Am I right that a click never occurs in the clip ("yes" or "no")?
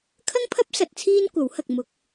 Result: yes